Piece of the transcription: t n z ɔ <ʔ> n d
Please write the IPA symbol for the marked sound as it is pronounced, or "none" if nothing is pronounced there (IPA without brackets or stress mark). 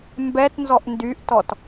ʔ